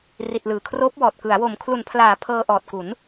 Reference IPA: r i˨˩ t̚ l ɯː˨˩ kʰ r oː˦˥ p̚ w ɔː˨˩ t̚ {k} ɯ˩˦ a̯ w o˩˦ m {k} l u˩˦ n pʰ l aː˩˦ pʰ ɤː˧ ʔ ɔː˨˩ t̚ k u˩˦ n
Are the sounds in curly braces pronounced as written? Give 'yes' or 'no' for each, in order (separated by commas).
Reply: yes, no